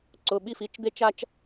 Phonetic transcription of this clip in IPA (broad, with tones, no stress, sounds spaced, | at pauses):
ǀ ʊ˧˥˧ ɓ i˥ f i˧˥˧ t͡ʃ d̪ e˥ t͡ʃ a˥ t͡ʃ